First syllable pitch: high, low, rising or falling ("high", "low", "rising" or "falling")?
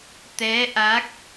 rising